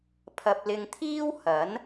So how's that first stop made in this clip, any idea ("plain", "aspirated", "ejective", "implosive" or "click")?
aspirated